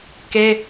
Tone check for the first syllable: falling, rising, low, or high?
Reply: high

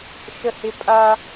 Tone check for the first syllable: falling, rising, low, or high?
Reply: high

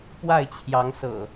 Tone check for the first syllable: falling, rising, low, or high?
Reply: falling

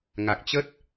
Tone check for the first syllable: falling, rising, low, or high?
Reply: low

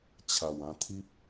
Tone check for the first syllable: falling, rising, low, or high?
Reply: low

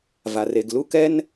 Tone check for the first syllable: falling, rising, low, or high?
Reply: low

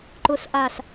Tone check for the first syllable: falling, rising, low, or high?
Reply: low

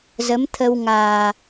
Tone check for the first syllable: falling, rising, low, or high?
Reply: rising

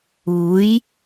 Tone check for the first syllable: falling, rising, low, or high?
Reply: rising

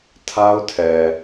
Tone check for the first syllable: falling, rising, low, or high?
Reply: high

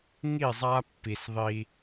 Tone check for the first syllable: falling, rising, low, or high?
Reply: falling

